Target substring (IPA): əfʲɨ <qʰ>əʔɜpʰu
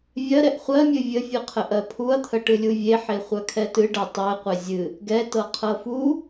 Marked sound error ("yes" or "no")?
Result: no